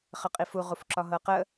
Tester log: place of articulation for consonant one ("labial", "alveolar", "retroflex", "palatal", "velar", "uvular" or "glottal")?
uvular